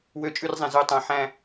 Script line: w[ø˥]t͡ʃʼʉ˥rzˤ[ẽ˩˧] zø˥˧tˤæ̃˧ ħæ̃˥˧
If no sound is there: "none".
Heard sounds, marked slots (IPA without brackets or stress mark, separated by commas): ø˥˧, ẽ˧